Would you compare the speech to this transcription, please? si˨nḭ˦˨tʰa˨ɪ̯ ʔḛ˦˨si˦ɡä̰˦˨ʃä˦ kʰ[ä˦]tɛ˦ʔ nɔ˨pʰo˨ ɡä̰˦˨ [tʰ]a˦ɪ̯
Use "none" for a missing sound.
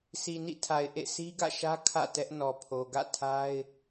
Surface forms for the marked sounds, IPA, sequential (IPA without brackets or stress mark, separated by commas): ä̰˦˨, tʰ